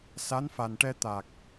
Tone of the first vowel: rising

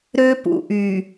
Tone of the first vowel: high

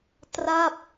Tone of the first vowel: falling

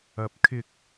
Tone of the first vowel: rising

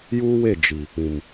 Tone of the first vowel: high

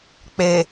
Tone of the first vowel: low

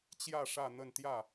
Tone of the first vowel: falling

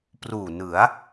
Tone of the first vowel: low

